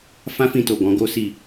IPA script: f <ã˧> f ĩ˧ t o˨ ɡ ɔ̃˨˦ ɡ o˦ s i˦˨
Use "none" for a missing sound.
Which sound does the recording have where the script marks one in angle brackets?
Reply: ã˦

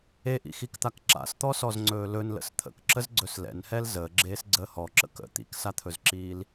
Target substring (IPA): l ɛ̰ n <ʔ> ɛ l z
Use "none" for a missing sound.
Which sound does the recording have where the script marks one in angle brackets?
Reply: h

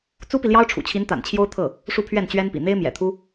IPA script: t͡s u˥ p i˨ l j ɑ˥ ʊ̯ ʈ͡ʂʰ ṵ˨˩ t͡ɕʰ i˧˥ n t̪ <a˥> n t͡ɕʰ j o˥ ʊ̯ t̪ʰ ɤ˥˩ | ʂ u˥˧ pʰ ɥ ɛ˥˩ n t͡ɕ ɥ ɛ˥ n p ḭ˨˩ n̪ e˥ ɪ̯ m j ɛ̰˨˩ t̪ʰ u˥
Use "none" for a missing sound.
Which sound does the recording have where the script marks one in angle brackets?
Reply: a̰˨˩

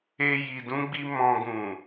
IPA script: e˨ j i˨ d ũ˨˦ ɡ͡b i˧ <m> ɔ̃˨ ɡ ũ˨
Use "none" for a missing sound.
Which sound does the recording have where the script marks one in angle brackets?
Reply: m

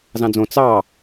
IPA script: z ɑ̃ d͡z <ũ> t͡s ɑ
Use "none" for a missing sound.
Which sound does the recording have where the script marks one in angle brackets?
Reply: õ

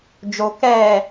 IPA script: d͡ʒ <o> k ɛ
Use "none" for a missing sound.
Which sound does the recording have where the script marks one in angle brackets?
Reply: o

